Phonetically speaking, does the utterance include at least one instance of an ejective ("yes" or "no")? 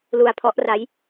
no